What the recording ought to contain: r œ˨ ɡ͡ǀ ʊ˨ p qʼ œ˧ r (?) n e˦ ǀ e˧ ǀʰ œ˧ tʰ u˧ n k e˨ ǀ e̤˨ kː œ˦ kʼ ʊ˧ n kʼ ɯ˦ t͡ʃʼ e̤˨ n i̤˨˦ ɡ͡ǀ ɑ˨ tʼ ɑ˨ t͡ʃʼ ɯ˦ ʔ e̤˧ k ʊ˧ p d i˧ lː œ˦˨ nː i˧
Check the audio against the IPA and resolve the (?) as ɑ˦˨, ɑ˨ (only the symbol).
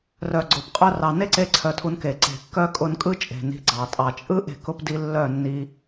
ɑ˨